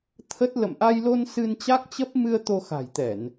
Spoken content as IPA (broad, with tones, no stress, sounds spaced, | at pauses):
t̪ʰ ə˦˥ t̚ l ə̰˧˨ m ʔ a˧ j l o˧ n s ɨ˧ n t͡ɕ a˦˥ k̚ t͡ɕ ə˦˥ p̚ m ɨ˧ ə̯ t̪ o˧ x a̤˨˩ j t̪ ɛ˧˩˨ n